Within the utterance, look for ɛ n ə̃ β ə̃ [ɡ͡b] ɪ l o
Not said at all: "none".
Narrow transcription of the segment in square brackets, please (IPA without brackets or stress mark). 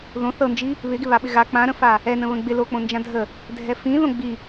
ɡ͡b